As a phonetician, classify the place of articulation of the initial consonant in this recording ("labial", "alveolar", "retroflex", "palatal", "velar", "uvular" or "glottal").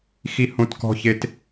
velar